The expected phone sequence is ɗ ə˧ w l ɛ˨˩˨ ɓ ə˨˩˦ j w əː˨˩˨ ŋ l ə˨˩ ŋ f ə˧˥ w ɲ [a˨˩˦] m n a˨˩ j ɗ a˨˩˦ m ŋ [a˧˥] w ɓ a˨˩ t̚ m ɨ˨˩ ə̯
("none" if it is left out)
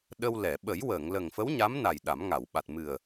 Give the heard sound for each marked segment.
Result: a˧˥, a˨˩˨

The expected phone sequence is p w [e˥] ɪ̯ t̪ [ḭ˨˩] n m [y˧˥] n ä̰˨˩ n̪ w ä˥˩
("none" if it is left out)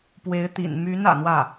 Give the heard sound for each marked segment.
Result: e˧˥, ḭ˨˩, y˧˥

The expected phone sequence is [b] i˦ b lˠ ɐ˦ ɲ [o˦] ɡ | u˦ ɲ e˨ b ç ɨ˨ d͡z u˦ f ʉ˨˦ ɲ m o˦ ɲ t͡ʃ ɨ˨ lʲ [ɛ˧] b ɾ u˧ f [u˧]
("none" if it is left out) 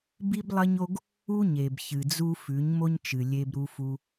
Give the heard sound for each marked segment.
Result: b, o˦, e˧, u˧

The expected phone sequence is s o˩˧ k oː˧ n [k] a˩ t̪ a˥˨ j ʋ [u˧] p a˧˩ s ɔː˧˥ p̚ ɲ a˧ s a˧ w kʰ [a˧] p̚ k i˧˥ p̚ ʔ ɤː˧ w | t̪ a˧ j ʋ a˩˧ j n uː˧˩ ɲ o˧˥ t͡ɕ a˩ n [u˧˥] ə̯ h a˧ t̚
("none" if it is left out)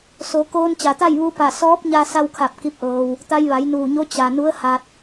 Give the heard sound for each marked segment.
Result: t͡ɕ, u˧, a˧˩, u˧˥

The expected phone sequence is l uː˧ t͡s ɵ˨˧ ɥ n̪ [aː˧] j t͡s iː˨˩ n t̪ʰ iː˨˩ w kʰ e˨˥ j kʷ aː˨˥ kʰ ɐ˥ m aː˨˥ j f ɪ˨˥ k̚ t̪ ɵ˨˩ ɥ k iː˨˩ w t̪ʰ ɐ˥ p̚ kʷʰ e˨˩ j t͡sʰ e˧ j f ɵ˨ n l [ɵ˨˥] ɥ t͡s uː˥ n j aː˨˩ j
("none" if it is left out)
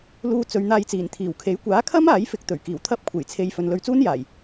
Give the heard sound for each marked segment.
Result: aː˧, ɵ˧

